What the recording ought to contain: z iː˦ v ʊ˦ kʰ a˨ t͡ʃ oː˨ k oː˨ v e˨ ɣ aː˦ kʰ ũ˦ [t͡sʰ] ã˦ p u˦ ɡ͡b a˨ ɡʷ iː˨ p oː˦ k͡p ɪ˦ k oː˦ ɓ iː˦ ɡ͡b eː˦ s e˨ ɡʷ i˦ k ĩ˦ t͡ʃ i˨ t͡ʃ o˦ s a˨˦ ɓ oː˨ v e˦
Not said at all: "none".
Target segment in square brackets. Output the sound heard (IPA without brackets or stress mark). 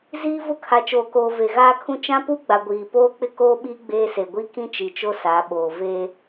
t͡ʃ